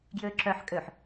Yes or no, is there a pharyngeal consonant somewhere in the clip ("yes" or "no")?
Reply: yes